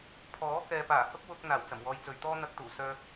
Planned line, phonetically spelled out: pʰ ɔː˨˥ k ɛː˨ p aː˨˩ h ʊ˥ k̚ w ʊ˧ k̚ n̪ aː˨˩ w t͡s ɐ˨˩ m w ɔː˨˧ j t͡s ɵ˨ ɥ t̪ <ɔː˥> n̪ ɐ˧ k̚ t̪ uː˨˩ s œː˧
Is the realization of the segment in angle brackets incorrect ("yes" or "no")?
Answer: no